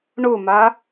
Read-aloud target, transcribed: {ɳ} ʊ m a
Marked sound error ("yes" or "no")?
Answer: no